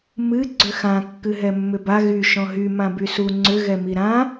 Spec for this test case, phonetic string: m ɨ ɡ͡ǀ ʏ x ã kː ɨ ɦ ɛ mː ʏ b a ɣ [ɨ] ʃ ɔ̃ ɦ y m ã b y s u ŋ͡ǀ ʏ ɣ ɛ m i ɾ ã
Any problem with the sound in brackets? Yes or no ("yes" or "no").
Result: yes